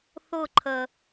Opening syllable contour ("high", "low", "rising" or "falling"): falling